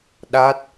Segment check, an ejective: absent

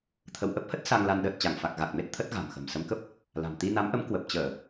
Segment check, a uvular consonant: absent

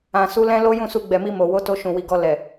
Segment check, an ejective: absent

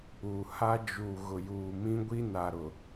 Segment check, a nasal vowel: present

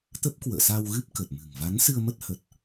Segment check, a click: absent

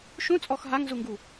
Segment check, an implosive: absent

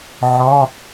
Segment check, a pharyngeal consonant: present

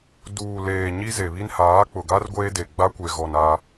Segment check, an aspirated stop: absent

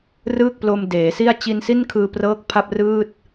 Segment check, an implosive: absent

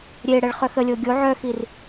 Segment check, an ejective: absent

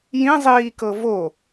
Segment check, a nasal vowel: present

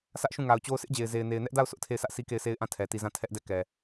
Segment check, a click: absent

